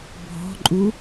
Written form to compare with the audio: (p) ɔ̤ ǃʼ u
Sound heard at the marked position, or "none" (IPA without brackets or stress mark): bʱ